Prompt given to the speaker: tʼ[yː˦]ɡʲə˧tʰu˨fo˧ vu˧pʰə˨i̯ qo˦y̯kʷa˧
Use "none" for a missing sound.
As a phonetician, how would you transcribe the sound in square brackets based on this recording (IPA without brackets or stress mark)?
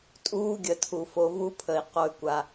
uː˦